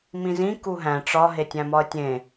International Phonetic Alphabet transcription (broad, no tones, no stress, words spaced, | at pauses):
mĩzĩ kuɦæ̃ ʈ͡ʂɒ ɦetʲæ̃mɒə̯tʲẽ